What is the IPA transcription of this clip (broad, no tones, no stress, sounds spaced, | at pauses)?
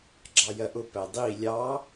ɡ͡ǁ ɑ j ɜ ʔ ʊ p æ dˤ i lʲ ɑ